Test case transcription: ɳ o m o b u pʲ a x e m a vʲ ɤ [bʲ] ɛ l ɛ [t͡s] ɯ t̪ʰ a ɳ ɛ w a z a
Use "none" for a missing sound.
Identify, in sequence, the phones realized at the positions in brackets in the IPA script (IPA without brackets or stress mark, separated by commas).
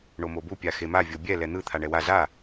bʲ, n̪